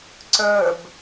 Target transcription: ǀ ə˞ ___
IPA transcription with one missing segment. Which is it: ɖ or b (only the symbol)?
b